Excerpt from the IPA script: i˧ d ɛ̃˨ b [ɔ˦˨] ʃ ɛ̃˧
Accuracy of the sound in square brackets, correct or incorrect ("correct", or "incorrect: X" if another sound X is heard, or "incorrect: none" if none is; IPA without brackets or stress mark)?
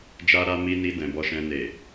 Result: incorrect: ɔ˧